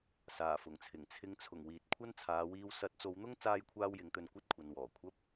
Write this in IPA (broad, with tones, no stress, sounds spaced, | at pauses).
s aː˨˩ f ʊ˨˩ ŋ t͡sʰ ɪ˨˩ ŋ t͡sʰ ɪ˨˧ ŋ t͡sʰ ʊ˨˩ ŋ w iː˨ t̚ kʷʰ ɐ˥ n t͡sʰ aː˨˧ w iː˧ w s ɐ˨˥ t̚ t͡s o˨˧ w n̪ ʊ˥ ŋ t͡s aː˥ j kʷʰ aː˥ w j ɪ˨˥ ŋ t̪ ɵ˧ n kʷ ɐ˥ t̚ kʷʰ ɐ˨ n w ɔː˨˩ kʷʰ ɐ˥ p̚